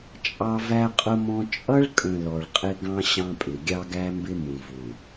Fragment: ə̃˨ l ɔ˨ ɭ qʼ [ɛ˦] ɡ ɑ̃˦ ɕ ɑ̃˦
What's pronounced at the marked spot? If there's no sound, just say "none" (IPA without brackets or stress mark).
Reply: ɪ˦